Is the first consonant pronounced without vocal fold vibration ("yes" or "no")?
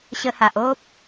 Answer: yes